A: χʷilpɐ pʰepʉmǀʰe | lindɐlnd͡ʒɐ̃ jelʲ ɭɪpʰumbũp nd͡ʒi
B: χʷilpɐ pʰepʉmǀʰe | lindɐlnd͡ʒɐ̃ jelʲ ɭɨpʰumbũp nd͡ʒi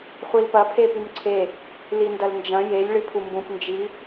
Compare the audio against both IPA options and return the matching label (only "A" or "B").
B